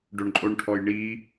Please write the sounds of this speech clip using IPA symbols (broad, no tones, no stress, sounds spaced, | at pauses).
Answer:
ɖ o ɳ ǃʼ o ɳ ʈʰ ɔ j ɳ i